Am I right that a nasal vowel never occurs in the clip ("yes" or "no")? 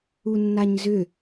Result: yes